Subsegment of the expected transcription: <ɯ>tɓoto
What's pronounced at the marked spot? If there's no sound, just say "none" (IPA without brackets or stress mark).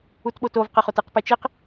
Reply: u